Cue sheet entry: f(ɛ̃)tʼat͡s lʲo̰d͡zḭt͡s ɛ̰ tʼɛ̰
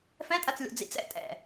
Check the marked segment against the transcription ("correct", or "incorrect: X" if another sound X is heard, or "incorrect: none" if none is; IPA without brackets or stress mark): correct